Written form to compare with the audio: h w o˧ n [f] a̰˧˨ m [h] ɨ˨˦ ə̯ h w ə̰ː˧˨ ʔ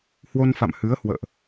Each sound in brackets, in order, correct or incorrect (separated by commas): correct, correct